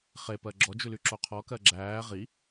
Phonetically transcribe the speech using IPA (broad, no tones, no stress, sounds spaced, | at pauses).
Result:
χ e p ɜ ɡ͡ǁ ɔ d͡ʒ ʉ l y ǁ o qʰ ɔ k ɜ ɡ͡ǁ æː ʁ i